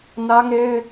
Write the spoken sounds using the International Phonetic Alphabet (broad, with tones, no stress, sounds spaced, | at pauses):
n ä˦ ŋ e˦ ɪ̯